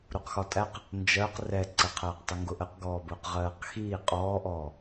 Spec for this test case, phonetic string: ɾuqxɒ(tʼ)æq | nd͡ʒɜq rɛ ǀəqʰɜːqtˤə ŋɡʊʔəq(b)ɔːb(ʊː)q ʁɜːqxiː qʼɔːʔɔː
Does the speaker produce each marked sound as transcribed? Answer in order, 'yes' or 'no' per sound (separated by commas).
yes, no, yes